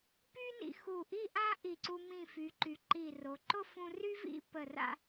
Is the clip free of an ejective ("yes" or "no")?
yes